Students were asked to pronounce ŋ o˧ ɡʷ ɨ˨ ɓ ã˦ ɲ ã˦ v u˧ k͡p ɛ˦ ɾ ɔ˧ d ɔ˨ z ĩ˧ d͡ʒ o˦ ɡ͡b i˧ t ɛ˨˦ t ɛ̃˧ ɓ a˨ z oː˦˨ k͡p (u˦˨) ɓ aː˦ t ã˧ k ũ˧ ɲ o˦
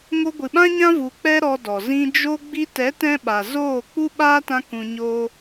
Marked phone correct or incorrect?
incorrect: u˦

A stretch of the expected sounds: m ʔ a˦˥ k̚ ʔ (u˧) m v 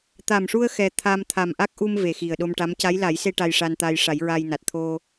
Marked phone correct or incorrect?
correct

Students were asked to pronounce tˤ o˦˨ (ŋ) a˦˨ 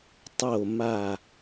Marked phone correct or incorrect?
incorrect: m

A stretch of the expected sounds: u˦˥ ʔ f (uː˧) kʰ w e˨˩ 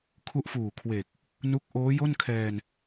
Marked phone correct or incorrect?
incorrect: uː˨˩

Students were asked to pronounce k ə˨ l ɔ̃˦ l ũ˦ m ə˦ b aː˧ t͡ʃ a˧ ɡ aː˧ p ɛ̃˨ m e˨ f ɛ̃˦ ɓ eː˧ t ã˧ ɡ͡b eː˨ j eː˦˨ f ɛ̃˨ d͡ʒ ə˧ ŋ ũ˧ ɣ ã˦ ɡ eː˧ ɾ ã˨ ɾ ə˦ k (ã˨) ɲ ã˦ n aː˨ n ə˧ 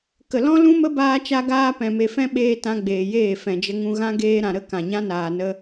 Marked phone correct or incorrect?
correct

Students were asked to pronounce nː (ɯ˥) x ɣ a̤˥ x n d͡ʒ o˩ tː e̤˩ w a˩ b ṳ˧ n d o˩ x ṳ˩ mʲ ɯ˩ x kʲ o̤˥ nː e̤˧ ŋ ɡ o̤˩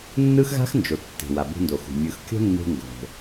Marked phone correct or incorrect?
correct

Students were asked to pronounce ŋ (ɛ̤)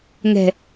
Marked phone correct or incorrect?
correct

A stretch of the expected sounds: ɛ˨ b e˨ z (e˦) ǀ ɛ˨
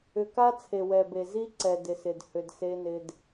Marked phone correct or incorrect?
incorrect: i˦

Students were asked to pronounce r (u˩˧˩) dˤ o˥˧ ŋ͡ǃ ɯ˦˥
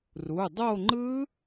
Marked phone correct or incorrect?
correct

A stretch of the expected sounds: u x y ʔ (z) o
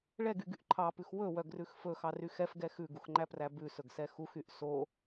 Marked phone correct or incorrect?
incorrect: s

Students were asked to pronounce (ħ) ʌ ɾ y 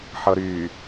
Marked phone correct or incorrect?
correct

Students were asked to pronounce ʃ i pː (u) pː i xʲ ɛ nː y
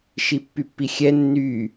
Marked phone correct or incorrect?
incorrect: y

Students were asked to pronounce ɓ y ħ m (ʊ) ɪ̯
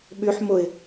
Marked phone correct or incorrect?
correct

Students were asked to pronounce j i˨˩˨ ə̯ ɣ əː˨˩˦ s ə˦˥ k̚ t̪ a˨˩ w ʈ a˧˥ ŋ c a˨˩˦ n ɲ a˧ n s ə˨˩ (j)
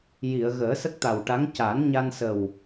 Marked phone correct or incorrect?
incorrect: w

